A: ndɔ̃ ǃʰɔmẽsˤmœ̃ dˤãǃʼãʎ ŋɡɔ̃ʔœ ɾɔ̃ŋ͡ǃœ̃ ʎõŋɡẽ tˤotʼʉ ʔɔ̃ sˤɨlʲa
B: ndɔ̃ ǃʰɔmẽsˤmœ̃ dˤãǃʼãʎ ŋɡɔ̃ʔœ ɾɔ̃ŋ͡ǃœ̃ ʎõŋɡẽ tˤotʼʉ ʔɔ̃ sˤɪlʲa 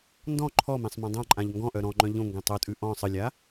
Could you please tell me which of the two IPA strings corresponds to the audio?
A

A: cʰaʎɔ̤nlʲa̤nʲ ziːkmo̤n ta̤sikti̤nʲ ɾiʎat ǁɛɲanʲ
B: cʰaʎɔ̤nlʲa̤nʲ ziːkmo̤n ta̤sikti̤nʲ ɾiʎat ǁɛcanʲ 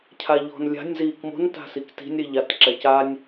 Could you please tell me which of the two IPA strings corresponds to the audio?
B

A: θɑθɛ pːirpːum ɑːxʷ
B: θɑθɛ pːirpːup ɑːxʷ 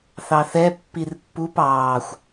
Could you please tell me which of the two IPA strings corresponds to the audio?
B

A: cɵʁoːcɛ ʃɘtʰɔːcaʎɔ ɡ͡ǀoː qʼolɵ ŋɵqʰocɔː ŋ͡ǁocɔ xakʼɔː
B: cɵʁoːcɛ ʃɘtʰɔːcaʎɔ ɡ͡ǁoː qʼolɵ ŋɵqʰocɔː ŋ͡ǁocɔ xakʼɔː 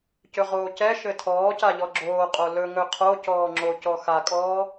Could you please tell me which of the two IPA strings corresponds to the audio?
B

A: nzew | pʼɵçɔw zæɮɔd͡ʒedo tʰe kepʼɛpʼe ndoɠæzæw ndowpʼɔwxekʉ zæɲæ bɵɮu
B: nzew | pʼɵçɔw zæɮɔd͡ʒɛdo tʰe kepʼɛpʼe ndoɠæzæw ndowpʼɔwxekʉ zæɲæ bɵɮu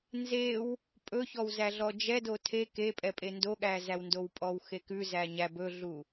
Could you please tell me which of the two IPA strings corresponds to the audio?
B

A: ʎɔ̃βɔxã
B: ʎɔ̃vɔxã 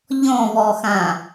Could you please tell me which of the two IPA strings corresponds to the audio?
A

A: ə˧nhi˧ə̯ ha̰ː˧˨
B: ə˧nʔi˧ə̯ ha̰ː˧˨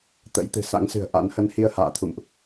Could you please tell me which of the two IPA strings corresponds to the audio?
A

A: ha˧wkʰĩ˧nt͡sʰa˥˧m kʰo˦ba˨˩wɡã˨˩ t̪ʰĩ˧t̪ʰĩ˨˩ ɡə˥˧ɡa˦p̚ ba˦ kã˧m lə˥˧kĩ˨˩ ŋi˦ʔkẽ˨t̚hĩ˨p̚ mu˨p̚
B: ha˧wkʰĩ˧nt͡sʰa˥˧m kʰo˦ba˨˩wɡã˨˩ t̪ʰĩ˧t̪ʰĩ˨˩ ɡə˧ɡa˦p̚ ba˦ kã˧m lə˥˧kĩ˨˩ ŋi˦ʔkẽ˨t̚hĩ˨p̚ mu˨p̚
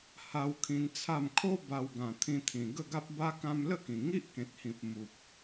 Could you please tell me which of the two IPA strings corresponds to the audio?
A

